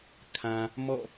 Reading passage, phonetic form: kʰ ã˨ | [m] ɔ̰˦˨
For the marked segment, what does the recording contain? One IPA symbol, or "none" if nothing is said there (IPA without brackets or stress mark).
m